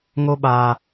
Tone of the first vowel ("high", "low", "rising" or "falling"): high